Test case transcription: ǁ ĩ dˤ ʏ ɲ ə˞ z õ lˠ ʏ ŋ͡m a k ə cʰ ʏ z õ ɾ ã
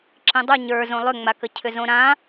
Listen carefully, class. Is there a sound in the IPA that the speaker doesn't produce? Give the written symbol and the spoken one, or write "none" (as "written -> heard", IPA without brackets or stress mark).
none